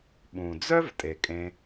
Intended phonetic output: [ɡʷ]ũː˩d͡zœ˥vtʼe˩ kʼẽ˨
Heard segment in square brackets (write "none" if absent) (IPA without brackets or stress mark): ɓ